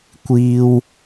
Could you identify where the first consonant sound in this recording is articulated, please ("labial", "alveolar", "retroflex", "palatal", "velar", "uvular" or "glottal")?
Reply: velar